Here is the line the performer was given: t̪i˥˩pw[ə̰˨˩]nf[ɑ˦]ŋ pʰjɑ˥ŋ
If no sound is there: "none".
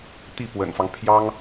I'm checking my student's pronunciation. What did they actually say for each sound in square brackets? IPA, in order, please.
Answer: ə̰˨˩, ɑ˦

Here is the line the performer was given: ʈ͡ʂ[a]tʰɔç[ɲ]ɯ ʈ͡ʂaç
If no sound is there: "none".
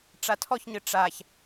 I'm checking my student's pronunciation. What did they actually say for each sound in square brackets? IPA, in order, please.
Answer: a, ɲ

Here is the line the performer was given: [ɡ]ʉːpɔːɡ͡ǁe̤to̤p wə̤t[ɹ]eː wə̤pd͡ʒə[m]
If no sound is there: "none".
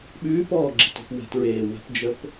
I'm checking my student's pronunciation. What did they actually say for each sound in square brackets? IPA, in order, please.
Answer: ɓ, ɹ, p

